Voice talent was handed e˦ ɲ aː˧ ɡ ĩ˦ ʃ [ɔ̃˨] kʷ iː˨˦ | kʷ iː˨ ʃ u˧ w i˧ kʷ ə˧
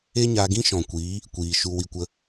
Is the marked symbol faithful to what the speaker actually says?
yes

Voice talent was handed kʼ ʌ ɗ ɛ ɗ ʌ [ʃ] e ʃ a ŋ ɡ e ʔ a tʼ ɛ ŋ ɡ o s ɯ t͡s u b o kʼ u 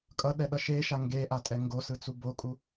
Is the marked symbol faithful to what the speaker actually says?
yes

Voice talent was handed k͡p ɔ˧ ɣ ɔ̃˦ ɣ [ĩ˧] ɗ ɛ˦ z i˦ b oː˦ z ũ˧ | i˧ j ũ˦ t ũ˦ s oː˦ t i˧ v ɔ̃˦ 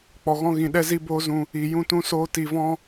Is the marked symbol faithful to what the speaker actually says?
yes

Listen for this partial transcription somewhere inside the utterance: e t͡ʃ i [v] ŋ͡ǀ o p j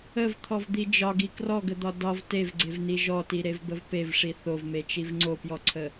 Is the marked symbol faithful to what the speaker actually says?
yes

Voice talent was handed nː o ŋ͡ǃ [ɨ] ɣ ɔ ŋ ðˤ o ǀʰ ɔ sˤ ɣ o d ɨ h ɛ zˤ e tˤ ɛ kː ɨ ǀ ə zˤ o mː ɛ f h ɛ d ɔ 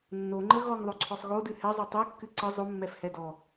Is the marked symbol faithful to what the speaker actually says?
no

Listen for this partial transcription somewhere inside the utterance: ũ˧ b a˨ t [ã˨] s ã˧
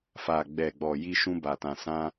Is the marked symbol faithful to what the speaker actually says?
yes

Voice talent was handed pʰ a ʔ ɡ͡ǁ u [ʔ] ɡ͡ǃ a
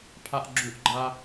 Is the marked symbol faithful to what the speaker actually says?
yes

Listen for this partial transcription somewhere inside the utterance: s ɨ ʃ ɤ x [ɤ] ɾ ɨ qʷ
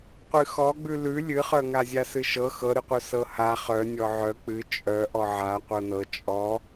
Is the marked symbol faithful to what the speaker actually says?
yes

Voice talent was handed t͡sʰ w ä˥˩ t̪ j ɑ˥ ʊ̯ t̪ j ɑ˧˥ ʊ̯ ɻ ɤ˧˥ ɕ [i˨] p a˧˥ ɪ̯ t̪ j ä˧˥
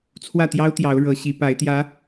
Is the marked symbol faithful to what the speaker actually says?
no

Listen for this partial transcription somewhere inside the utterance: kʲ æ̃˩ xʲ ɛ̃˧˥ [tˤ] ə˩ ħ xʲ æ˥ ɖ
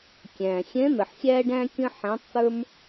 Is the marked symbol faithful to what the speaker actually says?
no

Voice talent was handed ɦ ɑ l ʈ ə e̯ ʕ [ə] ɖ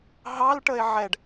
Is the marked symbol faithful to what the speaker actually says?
no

